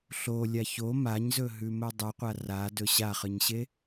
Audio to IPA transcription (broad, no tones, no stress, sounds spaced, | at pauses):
ɬ o lʲ a ç o m a ɲ z ɵ ɦ ʉ m ɵ dˤ ɨ qʷ a r a d ɵ ɕ a χ ɨ ɲ ɕ e